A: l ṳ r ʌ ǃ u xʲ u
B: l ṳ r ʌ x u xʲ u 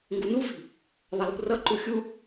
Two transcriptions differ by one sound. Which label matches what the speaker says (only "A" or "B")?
A